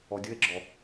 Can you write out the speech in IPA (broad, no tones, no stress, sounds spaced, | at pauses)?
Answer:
ɔ dʲ ʊ e̯ ɡ͡ǁ ɔ